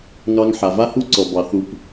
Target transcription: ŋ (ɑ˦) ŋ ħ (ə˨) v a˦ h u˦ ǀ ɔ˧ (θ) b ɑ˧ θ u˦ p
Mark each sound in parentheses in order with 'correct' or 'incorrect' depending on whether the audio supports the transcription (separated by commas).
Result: correct, incorrect, incorrect